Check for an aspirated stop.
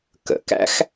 absent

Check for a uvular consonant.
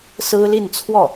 absent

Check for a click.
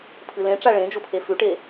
absent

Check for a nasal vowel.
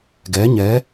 absent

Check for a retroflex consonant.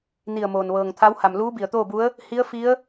absent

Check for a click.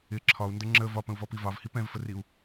present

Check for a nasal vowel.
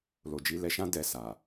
present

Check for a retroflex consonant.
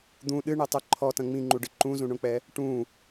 present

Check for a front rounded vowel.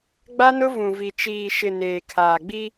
absent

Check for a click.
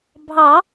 absent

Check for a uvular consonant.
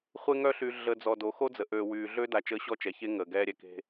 present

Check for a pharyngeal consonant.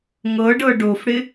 absent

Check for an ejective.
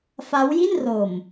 absent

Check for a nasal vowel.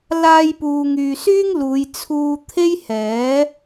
absent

